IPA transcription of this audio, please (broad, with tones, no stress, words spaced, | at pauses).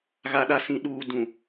ɣa˨ɗa˨sĩ˨ ɗuː˨ dũ˨